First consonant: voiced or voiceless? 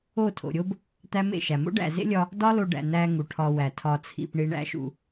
voiceless